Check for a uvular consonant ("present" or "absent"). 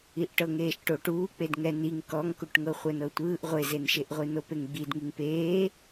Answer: present